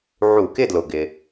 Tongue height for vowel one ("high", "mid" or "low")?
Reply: high